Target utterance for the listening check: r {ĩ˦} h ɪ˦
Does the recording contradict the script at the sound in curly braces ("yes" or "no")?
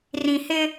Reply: yes